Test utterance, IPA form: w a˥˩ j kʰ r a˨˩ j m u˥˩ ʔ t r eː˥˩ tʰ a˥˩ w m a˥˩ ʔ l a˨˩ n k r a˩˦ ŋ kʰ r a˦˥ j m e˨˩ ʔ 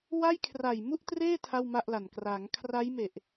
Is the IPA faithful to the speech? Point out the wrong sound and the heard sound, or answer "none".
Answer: none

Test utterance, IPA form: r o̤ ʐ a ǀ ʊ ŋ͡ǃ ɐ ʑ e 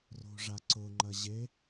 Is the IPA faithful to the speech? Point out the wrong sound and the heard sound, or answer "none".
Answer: none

